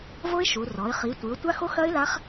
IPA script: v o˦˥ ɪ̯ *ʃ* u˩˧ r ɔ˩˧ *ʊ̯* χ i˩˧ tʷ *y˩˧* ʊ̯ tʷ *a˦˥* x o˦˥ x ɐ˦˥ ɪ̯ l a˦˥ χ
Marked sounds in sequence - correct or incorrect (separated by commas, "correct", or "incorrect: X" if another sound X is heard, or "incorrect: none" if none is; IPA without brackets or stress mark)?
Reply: correct, incorrect: ɪ̯, incorrect: ɨ˩˧, correct